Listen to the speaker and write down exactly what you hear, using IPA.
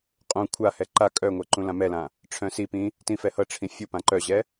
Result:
qʼ ũ kʷʰ a h ɛ ǃ a kʼ œ ŋʷ ɛ ǃ ũ l ã m ɛ l ã | ʈ͡ʂʰ œ̃ s i p ĩ | t ĩ f ɛ h ɤ ʈ͡ʂʰ ĩ fʲ u p ã ǃ œ ʑ ɛ

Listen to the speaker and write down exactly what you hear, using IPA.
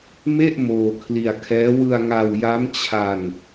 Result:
m e˥˩ ʔ m oː˧ kʰ l i˧ a̯ kʰ ɛː˦˥ w ɯ˧ a̯ ŋ a˧ w j a˦˥ m t͡ɕʰ a˧ n

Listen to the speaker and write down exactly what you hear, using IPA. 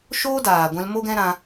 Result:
ʃ oː˦ d aː˨ ɡʷ ɛ̃˧ l m o˦ ɡ ɛ̃˦ ɾ ã˧

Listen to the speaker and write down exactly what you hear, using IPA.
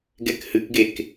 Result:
ɡ ɛ k h ɨ k ɡ e k

